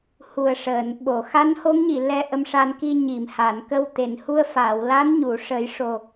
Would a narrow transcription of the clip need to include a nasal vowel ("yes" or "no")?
no